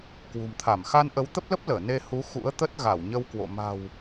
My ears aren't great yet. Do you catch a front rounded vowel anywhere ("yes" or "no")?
no